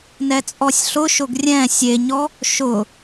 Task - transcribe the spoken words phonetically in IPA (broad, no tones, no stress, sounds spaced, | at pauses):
n ɛ t͡sʼ ɔ sʲ ɬ ʊ ʃ ʊ ɡ rʲ ɛ̃ sʲ e ɲ ɔ | ʃ ʊ